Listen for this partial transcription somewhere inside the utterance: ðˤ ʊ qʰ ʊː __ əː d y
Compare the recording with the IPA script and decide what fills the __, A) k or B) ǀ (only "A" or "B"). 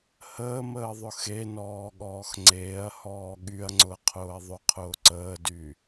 B